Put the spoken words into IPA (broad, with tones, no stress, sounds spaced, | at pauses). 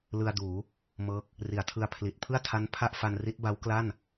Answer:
l ɯ˧ a̯ d uː˩˦ | m ɤː˦˥ k̚ | r i˩˦ a̯ tʰ ɯ˧ a̯ pʰ l i˨˩ t̚ pʰ ɯ˥˩ a̯ tʰ a˦˥ n pʰ a˥˩ ʔ f a˧ n r i˦˥ t̚ b a˦˥ w k l a˥˩ n